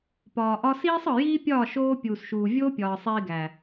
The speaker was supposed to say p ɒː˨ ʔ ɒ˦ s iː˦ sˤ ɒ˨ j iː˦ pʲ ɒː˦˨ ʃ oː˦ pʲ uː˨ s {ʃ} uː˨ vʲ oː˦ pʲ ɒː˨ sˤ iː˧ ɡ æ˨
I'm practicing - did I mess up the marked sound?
no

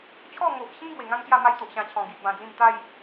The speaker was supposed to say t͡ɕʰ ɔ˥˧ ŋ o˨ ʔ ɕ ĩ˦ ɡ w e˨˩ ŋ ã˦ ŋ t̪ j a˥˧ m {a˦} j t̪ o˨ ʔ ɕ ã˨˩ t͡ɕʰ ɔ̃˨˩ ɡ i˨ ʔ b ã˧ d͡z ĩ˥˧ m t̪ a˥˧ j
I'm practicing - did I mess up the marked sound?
no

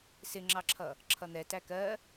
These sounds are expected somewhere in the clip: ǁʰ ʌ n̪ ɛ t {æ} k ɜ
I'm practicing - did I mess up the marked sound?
no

